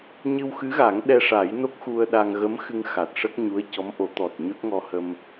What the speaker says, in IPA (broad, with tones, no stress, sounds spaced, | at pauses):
ɲ ɨ˧ w x ɨ˧˥ ɣ a˨˩˦ ŋ ɗ ɛ˧ ʂ a˨˩˦ j n o˦˥ k̚ x u˧ ə̯ ɗ a˧ ŋ ɣ ə˧˥ m x ɨ˧ ŋ x a˨˩ t̚ ʂ ə˦˥ k̚ ɲ u˧˥ ə̯ c ɔ˧˥ m ʔ o˨˩˦ t̪ ɔ˨˩ t̚ ɲ o˦˥ t̚ ŋ ɔ˧ h ə˧ m